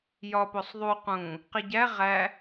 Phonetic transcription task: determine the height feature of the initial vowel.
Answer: low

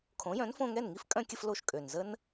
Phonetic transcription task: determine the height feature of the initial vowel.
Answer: mid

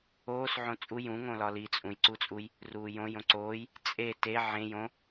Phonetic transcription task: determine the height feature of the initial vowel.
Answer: mid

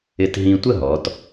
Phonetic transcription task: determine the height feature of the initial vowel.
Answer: high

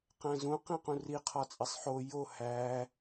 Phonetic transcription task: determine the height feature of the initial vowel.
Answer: low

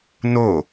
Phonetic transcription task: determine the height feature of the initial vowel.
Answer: mid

